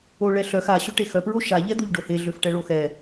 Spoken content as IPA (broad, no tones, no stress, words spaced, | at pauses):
oɭɛɬœx a ɕøʈexœ pɹoʃa ʎɛd̪oʎɖohe ɮøfʈɛɭoxɛ